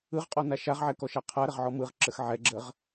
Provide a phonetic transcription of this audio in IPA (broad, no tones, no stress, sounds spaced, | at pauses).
ɯ ʁ qʼ ɔ n a ʃ a ʁ ʕ ɛ k ɔ ʃ a qʰ a ɾ ə ʁ ʕ ɔ m ɯ ʁ ǁ ə x ʕ ɛ ɡ͡ǁ ə ʁ